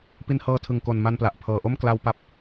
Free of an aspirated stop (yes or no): no